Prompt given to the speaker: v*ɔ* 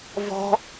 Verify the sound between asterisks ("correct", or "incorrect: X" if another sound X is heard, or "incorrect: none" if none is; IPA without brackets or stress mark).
incorrect: ɔ̤